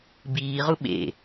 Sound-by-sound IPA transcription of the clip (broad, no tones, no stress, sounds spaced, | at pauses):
b iː ʁ u ɓ ḛ